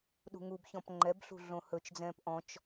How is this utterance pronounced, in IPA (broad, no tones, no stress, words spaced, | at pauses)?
ɗṳŋubçɔ̃p ŋ͡ǃɛbɬṳ ɮõhɵt͡ʃd͡zɛ̃ːp ʔɔ̃t͡ʃ